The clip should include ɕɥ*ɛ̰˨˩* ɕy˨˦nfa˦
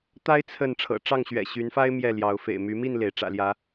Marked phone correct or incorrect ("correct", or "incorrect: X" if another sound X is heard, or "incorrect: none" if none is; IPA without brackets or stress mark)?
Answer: correct